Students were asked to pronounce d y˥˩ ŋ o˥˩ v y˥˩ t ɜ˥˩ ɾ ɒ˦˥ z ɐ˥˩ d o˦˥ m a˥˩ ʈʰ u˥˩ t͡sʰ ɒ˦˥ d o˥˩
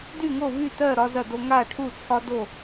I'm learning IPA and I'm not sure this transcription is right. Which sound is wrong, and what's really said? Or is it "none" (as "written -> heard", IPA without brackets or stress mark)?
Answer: m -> ŋ